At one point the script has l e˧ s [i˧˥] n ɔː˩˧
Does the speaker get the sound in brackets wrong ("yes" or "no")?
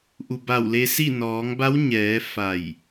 yes